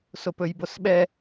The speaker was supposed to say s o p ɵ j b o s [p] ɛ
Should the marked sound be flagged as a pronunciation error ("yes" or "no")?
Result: yes